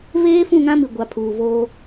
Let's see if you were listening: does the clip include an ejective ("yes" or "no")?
no